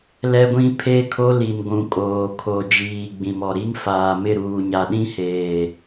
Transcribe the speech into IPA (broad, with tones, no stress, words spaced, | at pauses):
lɛ˦ɡʷĩ˦ pʰe˦kʰo˦li˨n ɡʷũ˨kʼoː˨ kʰo˨d͡ʒiː˨ ɡ͡bĩ˨mɔ˨ɾi˦ŋ faː˨mɪ˦˨ɾuː˨ ɲa˨ɗĩ˦heː˨